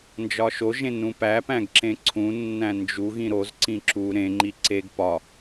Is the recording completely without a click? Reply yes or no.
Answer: no